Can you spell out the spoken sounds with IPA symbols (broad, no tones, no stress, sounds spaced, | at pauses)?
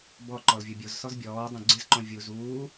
b ɔ ǃ ɔ l vʲ ʊ bʲ o z s ɔ z bʲ ɔː dˤ õ ɡ͡ǀ ɪ z ǃ õ vʲ u z uː